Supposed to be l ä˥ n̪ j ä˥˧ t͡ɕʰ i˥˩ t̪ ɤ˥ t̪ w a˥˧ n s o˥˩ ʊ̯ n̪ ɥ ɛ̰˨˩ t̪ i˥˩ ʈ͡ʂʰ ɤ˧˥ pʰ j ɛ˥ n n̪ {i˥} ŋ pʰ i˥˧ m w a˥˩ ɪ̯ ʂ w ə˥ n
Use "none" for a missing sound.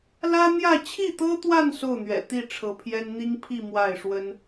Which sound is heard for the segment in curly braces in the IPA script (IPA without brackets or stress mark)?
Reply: i˥